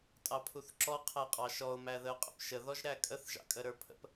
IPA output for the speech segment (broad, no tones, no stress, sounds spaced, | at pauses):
tʼ ɑ pʰ u θ ǁ ɔ qʰ æ qʼ ɑ ʃ ɔ ʊ̯ m æ ð ə ʊ̯ qʼ ə̰ p ʃ ə ð ɔ ʒ ɾ æ kʼ ə θ ʒ ɑ̰ kʼ ə ɾ ə˞ pʰ ə̰ p